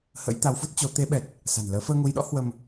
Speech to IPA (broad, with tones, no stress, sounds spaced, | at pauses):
h ə̰˧˥ j t̪ a˨˦ w f u˦˥ t̚ t͡ɕ o˨˦ t̪ e˨˦ ɓ ɛ˨˩ t̚ | s a̤˨˩ n l əː˨˦ f əː˧ ŋ u˨˦ j ɗ ɔ̰˧˥ h w ə˧ m